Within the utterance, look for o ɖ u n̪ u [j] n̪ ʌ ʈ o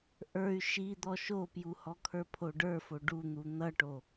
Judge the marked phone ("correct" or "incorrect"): incorrect